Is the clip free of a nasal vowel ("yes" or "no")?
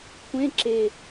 no